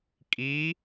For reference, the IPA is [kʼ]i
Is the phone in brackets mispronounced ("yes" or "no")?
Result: no